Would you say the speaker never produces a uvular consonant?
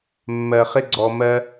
no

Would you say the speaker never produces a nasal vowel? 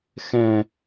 no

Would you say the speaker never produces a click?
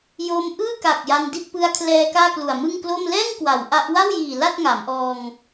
yes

